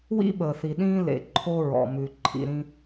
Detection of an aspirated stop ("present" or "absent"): present